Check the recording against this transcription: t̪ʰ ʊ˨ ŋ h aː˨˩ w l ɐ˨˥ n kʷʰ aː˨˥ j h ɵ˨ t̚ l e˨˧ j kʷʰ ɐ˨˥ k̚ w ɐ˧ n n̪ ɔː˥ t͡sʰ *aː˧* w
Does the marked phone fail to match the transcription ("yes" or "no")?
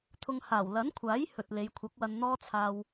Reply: no